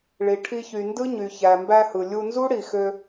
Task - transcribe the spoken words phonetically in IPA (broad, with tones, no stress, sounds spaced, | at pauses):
ɭ i˨ ʈʰ i˧ ç y˨ n d ɯ˦ ɲ y˨ ç æ˨ m b æ˧ h ɯ˨ lʲ u˧ n z u˦ ɽ i˨ x ø˧